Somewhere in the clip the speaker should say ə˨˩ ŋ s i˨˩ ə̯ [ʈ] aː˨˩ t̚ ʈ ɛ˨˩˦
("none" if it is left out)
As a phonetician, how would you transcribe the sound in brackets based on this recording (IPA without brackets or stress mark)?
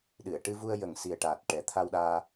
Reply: ʈ